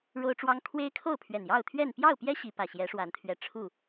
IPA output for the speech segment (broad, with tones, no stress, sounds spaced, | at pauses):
ɻ o˦ ʊ̯ ʈ͡ʂ w ɑ˦ ŋ kʰ w e˦ ɪ̯ kʰ o˥˨ ʊ̯ pʰ ɥ ɛ˨˩ n j ɑ˥˨ ʊ̯ t̪ʰ ɥ ɛ˥˨ n p j ɑ˥˨ ʊ̯ p j ɛ˦ ɕ i˨˦ p ä˨˩ ɕ j ɛ˨˦ ʂ w a˨˦ n t̪ʰ ɥ ɛ˨˩ ʈ͡ʂʰ u˥˨